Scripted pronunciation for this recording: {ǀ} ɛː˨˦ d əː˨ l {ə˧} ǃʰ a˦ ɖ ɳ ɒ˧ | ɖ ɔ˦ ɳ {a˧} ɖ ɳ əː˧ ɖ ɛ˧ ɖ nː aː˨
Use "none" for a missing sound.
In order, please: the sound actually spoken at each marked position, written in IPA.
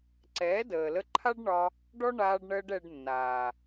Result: ǀ, ə˧, aː˧

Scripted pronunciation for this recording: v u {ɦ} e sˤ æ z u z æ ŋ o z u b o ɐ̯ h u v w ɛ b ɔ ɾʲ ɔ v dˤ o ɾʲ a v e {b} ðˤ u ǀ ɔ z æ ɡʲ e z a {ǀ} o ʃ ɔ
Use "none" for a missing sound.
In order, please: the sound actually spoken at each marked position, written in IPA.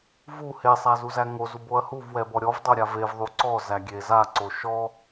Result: h, v, ǀ

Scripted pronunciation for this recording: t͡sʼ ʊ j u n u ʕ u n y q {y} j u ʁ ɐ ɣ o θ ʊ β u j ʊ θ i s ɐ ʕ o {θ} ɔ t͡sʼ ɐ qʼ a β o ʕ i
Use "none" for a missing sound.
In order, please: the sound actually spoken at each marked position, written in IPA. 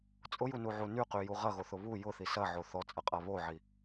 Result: y, θ

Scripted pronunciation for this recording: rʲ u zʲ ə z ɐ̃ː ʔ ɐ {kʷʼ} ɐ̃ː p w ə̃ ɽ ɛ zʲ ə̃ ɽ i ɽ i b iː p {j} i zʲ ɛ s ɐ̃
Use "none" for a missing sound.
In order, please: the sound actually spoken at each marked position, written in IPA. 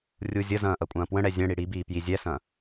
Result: kʷʼ, j

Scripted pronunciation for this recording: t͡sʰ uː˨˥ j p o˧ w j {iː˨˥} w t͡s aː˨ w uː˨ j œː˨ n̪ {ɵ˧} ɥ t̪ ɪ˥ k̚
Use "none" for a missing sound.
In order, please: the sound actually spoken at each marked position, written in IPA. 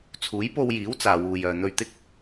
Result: iː˨˥, ɵ˧

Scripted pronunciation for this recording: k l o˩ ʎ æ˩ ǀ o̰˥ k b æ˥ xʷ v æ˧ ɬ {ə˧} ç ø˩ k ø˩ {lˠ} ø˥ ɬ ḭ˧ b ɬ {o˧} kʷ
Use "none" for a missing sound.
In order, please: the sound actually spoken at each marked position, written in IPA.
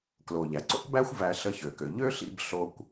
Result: ə˧, ʎ, o˧

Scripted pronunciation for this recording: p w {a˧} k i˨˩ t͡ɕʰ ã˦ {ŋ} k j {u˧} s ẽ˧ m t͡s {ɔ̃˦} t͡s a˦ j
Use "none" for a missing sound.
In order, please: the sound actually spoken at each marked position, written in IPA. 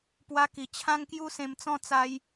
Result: a˧, ŋ, u˦, ɔ̃˥˧

